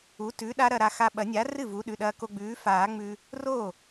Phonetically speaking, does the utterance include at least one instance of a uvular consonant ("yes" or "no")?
no